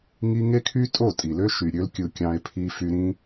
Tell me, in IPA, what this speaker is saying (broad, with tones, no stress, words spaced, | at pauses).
ŋi˦ ŋe˦kʰy˦ tʼo˦˨tʼi˨lø˦ ʃy˨ɾʲø˧lkʲɯ˨ kʲɑ̃˧e̯pʰi˧ fy˧ɾĩ˦